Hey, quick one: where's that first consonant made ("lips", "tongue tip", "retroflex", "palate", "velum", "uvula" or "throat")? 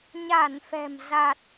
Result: palate